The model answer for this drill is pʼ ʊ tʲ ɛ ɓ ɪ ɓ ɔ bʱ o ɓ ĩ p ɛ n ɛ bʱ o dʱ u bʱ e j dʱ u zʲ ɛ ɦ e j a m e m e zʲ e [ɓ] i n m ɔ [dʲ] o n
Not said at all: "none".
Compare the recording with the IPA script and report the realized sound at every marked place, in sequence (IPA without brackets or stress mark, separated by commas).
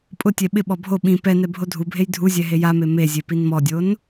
p, dʲ